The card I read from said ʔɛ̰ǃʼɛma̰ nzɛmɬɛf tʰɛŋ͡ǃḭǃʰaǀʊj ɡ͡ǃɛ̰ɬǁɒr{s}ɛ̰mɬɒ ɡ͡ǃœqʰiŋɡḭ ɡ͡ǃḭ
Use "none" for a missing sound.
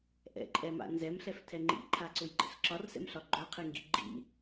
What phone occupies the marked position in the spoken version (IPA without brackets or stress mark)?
s